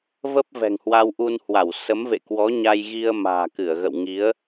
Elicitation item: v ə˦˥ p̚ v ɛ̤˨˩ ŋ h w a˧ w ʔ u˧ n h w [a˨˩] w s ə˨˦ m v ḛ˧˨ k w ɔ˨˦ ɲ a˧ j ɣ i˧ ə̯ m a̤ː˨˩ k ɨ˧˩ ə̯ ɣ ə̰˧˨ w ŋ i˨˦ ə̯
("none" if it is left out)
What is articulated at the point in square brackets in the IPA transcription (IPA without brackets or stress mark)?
a˧˩